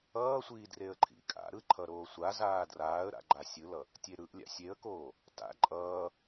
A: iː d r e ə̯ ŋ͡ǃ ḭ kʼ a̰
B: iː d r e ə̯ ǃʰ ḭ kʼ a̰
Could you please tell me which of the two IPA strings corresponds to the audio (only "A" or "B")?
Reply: B